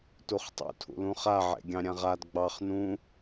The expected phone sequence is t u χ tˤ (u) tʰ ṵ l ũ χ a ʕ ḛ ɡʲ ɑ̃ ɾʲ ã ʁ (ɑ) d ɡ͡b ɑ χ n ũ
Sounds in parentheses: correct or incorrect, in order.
incorrect, incorrect

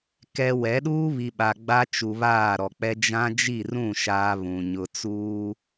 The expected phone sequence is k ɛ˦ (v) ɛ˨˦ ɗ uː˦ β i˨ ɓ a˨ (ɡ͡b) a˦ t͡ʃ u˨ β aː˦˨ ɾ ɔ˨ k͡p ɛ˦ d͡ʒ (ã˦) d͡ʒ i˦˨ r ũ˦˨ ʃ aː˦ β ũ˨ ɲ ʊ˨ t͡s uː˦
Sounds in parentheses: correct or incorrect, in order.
incorrect, correct, correct

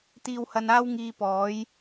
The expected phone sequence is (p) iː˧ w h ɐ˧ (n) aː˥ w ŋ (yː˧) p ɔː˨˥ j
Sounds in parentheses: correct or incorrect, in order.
incorrect, correct, incorrect

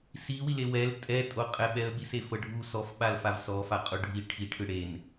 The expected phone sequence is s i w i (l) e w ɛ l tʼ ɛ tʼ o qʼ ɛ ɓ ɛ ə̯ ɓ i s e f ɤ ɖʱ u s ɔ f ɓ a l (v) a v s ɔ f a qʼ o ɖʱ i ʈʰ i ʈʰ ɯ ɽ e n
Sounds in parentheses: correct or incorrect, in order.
correct, incorrect

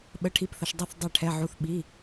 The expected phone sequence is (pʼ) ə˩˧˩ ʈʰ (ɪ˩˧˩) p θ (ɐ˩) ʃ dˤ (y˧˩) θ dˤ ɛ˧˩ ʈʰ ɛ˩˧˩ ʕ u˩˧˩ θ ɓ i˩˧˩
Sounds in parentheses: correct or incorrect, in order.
incorrect, incorrect, correct, incorrect

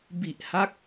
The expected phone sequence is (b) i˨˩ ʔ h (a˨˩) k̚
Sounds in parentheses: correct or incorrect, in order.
correct, incorrect

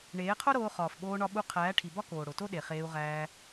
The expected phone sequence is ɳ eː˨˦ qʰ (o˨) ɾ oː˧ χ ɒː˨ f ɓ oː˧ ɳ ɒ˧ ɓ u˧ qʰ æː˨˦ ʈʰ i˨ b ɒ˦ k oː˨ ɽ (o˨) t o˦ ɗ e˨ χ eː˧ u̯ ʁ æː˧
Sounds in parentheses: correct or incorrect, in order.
incorrect, correct

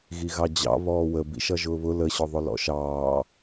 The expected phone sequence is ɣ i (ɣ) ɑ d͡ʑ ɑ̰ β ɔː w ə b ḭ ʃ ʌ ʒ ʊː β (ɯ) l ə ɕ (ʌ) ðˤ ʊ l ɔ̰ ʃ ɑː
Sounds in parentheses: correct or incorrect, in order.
correct, incorrect, incorrect

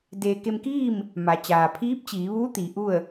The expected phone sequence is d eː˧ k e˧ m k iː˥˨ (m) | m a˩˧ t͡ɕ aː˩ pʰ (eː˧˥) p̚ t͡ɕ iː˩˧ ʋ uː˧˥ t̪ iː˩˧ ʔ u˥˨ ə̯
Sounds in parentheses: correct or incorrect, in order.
correct, incorrect

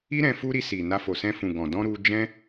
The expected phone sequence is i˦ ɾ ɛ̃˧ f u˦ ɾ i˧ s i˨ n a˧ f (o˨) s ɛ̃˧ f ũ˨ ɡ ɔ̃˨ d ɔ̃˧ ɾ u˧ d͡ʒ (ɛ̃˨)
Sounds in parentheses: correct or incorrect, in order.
correct, incorrect

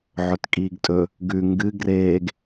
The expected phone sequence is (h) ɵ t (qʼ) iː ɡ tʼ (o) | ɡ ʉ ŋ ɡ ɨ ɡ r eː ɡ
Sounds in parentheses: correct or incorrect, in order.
incorrect, incorrect, incorrect

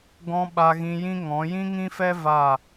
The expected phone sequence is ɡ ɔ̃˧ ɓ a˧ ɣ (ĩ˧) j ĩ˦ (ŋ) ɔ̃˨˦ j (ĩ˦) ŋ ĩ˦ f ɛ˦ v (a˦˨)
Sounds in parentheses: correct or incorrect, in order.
correct, correct, correct, correct

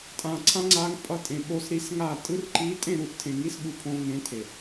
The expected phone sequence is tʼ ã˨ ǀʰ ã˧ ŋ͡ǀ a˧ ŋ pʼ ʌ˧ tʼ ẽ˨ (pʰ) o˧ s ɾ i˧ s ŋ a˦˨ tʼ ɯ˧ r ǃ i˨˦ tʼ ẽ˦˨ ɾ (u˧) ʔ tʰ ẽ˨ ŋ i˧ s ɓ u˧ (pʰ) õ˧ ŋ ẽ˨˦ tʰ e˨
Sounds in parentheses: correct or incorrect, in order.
incorrect, correct, correct

